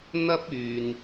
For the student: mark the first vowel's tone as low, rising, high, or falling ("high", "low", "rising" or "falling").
high